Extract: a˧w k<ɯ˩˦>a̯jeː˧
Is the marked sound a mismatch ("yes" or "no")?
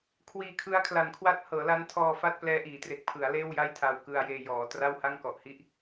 yes